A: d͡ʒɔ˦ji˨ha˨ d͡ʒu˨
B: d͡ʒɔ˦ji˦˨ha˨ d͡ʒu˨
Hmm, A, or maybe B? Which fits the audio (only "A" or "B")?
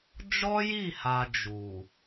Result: B